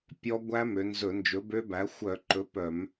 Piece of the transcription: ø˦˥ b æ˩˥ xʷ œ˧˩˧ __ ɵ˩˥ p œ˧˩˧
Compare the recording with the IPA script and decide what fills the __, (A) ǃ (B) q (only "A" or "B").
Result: A